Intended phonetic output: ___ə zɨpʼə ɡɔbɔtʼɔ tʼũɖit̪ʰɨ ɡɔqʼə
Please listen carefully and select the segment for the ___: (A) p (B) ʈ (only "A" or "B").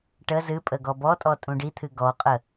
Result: B